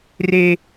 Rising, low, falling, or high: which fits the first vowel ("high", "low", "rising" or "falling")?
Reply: high